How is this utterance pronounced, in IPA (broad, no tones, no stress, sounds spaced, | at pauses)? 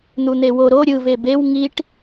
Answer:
n̪ u n̪ e w o ɾ o ɾʲ ɯ v e b e w ŋ i ʈ